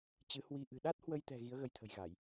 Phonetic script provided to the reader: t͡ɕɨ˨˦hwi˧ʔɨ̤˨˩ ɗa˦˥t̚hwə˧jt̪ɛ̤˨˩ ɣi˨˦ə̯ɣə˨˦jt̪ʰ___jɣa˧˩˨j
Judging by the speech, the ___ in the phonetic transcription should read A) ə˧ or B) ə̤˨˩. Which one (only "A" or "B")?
B